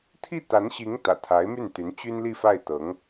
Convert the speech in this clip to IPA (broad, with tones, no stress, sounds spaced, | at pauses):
t̪ʰ i˥˩ t̪ a˧˥ n ɕ i˧˥ ŋ t̪ ä̰˨˩ t̪ʰ a˧˥ ɪ̯ m y˥˩ n t̪ y˧˥ n t͡ɕ y˥ n l i˥˧ f a˥˩ ɪ̯ t̪ ɤ˧˥ ŋ